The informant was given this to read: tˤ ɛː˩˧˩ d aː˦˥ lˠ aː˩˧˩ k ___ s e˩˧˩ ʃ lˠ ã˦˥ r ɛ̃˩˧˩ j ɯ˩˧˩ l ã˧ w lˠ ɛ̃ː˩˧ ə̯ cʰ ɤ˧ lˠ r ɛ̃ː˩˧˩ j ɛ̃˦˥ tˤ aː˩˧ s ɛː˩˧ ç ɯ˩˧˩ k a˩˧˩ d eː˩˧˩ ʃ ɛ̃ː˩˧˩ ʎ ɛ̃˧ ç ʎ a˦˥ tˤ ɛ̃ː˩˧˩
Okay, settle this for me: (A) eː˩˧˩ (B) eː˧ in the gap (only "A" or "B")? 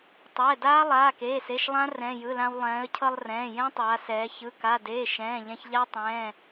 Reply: A